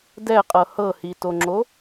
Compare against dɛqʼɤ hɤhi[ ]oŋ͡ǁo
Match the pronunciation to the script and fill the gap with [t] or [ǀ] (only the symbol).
t